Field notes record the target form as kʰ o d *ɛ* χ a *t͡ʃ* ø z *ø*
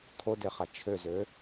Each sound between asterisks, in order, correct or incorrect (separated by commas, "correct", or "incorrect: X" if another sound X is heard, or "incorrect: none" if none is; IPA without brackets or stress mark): incorrect: e, incorrect: t͡ʃʰ, correct